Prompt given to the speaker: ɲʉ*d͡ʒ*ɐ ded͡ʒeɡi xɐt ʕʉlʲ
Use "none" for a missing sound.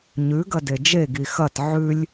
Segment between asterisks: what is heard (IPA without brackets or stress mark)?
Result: ɡ